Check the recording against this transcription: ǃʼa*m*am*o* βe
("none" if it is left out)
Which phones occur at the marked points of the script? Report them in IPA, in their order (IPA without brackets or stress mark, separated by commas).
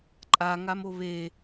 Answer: ŋ, o